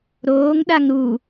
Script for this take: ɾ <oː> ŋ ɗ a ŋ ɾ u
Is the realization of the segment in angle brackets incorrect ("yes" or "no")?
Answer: no